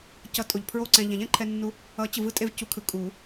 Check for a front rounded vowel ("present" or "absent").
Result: absent